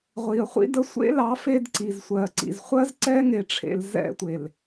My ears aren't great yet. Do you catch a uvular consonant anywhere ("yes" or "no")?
yes